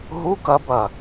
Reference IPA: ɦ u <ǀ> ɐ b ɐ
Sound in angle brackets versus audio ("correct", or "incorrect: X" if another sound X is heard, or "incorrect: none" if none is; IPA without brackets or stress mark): incorrect: k